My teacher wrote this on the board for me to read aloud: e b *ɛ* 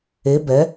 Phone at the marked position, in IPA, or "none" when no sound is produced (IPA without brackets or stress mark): ɛ